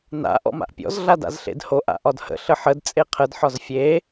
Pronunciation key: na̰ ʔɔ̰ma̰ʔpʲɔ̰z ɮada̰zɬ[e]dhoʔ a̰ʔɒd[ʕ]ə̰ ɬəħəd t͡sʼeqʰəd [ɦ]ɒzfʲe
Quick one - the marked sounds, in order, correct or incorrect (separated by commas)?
incorrect, incorrect, incorrect